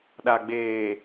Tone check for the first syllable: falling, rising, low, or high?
low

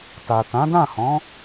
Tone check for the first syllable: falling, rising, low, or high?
low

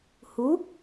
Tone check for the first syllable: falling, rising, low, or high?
rising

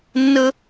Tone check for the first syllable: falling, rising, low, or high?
high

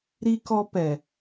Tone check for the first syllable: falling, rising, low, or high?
high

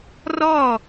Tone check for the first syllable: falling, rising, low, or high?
falling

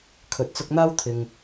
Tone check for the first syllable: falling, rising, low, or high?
low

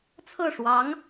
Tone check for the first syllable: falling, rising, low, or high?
falling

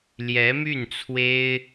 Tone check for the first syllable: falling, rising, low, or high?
rising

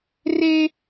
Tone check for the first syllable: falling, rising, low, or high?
high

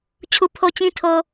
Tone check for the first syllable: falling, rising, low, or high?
low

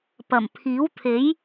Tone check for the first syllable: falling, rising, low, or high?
low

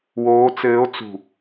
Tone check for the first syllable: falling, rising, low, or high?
rising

